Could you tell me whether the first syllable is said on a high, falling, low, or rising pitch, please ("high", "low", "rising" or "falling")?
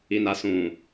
low